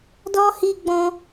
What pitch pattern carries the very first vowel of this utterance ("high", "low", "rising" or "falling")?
high